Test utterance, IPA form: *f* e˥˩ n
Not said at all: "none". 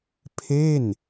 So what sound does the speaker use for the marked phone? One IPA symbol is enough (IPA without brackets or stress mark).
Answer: pʰ